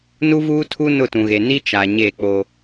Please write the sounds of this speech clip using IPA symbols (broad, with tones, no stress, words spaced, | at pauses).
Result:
nu˦vuː˦tʰu˦ nʊ˦˨tũ˨ɣe˨ ni˦ t͡ʃa˨ ɲe˦˨k͡po˦